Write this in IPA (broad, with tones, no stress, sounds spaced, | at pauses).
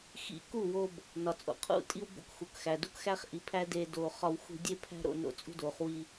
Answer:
x ḭ˧ k u˦˨ w o˧ b | n ɒ˨ t͡sʼ o̰˨ qʰ ṵ˦˨ tʼ i˦ w b o̰˦ k x u˨ k x æ˨ d u˧ k x æ˦ χ ʔ i˨ pʰ æ˦ d eː˧ d oː˨ χ ɒ˧ w x ṳ˧ dʲ e˦ pʰ æ̤˦ ɾ o̰˦˨ n o̰˧ t͡sʼ ṳ˦ d oː˨ χ w i˧